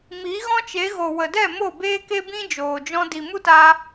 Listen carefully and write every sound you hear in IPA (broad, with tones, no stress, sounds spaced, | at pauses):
m i˨˦ ɣ ɔ̃˦ t͡ʃ e˨˦ ɣ o˨ w ə˨ d ɛ˦˨ m o˦˨ b eː˦ k e˦ b ĩ˦ d͡ʒ oː˨ d͡ʒ ɔ̃˦ d i˨ m u˦ t a˧